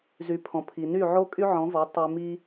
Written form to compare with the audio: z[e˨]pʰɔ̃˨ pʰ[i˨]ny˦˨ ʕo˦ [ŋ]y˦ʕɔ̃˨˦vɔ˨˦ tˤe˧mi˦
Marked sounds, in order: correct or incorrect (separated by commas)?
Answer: incorrect, correct, incorrect